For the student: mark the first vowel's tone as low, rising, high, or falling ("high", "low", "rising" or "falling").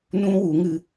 high